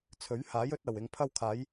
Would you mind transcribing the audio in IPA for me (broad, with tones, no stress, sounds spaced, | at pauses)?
t͡sʰ ɵ˨˥ ɥ h aː˨˥ j ɵ˨˥ t̚ ɐ˨˩ w ɪ˨ ŋ pʰ ɐ˧ w kʰ aː˨˧ j